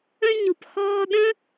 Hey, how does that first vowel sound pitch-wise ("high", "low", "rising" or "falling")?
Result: high